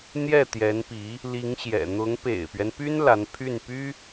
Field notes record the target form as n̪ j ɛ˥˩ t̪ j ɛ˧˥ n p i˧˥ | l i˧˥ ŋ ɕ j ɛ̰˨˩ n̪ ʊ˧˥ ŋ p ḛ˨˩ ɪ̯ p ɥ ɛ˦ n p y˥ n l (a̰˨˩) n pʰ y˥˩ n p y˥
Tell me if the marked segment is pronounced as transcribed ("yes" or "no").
no